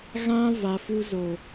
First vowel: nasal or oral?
nasal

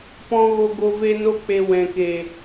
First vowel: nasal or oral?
nasal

